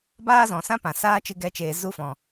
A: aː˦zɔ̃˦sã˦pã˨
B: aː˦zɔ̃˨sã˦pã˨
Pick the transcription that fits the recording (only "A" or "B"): B